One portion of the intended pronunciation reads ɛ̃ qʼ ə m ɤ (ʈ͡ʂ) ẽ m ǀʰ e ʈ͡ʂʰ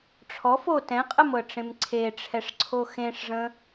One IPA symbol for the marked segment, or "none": ʈ͡ʂ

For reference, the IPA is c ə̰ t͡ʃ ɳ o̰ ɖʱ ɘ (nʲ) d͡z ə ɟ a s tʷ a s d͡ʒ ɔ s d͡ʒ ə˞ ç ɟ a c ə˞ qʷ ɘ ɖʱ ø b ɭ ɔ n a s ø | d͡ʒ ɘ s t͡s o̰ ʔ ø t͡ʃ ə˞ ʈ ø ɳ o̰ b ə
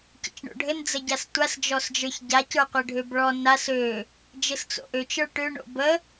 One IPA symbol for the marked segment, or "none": n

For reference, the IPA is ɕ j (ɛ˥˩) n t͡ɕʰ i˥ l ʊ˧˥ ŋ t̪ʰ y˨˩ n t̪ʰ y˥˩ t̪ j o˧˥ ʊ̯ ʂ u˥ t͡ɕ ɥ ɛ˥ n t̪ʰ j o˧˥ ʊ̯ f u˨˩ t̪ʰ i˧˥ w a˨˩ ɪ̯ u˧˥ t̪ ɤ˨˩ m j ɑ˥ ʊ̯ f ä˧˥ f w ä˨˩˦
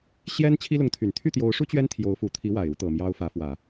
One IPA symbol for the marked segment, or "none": ɛ˥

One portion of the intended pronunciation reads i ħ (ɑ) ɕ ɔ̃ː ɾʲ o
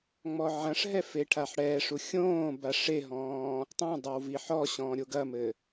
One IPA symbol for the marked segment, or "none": ɔ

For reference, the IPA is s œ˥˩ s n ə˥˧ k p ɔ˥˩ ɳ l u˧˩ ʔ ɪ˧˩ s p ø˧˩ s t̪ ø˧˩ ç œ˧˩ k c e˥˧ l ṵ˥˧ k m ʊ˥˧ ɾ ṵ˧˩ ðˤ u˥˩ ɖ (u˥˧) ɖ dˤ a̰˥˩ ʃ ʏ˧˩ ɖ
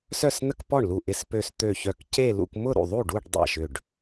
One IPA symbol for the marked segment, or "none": u˥˧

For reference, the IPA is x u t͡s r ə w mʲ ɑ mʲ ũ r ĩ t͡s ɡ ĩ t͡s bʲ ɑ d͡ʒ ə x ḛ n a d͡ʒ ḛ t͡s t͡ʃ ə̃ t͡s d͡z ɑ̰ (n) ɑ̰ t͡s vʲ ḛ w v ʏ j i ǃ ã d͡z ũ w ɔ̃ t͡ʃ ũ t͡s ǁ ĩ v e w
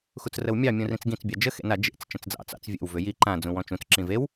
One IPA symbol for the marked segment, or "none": t͡s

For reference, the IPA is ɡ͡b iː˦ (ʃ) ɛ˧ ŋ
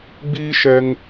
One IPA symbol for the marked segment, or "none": ʃ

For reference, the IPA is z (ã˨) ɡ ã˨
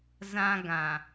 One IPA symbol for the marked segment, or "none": ã˦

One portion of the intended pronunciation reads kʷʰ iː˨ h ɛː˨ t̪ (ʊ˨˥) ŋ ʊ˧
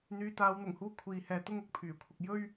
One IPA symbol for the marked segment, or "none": ʊ˥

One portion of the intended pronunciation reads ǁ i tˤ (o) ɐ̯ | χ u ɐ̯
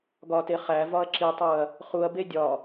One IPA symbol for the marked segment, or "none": u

